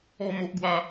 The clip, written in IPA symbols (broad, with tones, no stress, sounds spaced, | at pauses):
ɔ˥˧ m o˦ ʔ ɡ w a˦